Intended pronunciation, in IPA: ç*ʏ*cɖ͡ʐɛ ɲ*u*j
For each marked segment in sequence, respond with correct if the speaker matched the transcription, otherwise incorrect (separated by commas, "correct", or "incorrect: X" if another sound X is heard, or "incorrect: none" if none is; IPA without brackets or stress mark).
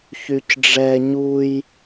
incorrect: y, correct